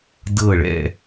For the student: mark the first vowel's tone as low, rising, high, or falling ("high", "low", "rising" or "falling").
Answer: falling